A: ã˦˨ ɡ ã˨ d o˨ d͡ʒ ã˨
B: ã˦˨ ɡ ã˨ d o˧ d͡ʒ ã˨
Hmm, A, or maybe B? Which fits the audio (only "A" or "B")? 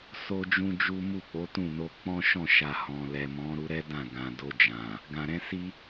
B